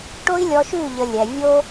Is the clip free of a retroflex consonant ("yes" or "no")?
no